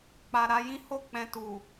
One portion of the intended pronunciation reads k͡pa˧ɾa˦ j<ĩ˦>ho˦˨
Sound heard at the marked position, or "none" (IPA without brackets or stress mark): ĩ˦